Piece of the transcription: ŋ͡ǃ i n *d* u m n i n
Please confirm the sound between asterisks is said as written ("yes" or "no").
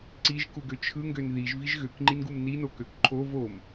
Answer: no